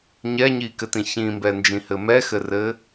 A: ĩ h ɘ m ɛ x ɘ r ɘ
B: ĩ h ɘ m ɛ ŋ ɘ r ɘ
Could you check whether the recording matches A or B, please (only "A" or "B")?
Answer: A